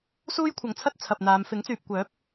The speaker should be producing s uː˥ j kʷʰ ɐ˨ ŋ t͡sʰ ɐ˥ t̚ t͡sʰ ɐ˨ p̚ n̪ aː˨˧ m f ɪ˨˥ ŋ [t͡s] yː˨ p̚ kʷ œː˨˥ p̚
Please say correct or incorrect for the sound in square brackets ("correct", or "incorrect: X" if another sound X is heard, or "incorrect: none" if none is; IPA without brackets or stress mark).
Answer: correct